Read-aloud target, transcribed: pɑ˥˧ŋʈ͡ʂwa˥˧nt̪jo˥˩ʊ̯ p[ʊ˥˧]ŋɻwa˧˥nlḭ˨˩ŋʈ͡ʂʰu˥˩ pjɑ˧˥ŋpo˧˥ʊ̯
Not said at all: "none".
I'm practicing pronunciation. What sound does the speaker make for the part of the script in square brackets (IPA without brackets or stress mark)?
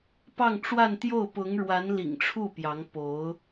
ʊ˧˥